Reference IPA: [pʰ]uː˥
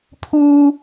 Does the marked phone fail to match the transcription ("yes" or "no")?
no